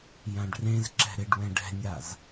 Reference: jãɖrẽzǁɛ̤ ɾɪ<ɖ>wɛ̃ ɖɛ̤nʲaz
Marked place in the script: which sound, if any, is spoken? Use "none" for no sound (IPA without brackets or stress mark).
ɖ